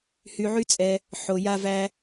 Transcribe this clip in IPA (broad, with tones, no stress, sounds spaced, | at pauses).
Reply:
h y˧ ʕ y˦ t͡sʼ ɛ˧ | ħ o˧ j a˦ v æ˦